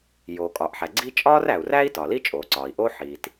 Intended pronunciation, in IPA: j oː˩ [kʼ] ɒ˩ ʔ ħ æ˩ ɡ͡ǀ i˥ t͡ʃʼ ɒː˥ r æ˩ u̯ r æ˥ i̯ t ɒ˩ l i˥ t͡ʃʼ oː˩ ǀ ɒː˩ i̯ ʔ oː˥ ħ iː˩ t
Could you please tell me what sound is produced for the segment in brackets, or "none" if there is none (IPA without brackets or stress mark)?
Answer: kʼ